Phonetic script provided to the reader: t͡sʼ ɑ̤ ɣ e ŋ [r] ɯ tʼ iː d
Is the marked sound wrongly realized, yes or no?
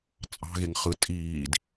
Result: yes